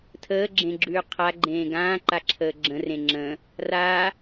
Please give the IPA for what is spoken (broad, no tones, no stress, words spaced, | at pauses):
tʰəːɡ͡ǁẽɡ͡ǁʉː qʰaɡ͡ǃẽː ɡãːǃaǁʰəː ɡ͡ǁə̃rẽ ŋ͡ǁə̃ | ra